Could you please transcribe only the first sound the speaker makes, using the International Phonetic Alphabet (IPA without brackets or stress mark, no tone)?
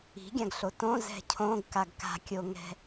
i̤